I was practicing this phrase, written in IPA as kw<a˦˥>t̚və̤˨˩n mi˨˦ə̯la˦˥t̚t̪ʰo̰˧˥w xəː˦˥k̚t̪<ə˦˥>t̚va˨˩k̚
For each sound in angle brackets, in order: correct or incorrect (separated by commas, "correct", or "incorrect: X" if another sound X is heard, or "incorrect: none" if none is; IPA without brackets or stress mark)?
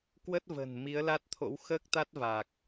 incorrect: ə˦˥, incorrect: a˦˥